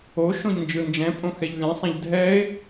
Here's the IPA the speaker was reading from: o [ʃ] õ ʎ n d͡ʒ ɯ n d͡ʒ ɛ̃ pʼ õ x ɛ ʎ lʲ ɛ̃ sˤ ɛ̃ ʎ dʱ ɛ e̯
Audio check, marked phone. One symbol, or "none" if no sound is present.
ʃ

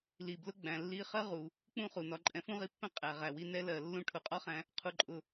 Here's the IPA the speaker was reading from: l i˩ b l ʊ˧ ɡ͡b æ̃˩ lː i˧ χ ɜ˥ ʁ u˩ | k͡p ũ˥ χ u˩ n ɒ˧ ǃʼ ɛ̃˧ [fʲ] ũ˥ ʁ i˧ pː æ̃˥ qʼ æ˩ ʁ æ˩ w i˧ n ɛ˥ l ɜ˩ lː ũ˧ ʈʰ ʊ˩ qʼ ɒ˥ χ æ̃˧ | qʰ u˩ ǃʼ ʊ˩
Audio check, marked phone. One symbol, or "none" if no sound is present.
f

